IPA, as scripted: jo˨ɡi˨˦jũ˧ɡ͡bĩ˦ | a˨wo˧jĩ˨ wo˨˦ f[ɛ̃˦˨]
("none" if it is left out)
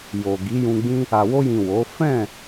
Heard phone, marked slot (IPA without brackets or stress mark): ɛ̃˦˨